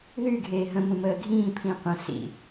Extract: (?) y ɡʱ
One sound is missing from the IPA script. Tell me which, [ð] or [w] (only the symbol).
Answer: ð